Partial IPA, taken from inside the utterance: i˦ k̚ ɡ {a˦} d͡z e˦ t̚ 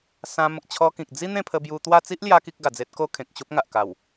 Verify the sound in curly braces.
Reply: incorrect: a˨˩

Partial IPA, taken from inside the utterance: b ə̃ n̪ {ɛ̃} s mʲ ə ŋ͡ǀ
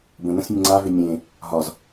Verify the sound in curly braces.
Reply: incorrect: ə̃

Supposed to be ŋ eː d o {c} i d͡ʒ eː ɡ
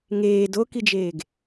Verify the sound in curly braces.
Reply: incorrect: k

